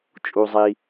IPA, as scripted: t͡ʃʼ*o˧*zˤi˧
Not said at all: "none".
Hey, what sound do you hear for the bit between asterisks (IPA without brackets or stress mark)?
u˧